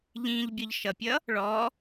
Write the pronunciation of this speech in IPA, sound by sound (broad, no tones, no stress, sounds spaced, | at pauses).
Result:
ʎ ĩ ʎ bʲ ɔ ʎ ʃ ʌ pʲ ʌ | ɭ ɔ